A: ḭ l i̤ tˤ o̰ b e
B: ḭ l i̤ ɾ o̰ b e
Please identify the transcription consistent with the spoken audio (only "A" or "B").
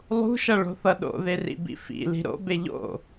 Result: B